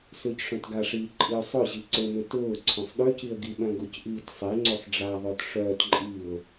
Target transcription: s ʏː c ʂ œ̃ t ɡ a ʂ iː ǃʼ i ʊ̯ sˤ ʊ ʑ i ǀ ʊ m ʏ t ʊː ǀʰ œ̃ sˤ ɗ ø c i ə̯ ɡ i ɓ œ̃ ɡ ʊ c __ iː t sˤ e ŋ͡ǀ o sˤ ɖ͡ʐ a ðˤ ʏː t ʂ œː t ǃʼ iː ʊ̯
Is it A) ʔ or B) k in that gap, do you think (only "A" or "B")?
A